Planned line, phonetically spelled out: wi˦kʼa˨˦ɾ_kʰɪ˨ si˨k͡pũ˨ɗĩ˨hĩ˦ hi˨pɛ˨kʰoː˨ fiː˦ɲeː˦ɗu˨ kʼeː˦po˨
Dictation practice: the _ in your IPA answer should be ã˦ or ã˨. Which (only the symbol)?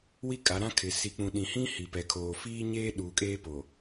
ã˦